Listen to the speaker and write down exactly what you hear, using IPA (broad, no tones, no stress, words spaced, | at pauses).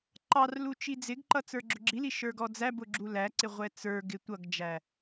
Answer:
ǃɑrlu t͡ʃid͡zɪɡǃʌ t͡sə˞ɡ͡ǁʊɡ͡ǁili ʃə˞ɡɔd͡zæbʊ ɡ͡ǁulæǀɪ ʁʷɛt͡sə˞ɡɪ tʷʌɡd͡ʒæ